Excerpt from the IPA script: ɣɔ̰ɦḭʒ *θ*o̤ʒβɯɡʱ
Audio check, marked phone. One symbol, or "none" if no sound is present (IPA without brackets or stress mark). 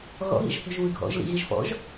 θ